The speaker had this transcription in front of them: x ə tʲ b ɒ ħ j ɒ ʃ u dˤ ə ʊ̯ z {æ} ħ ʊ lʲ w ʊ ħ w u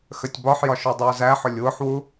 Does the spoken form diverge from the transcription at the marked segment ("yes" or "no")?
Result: no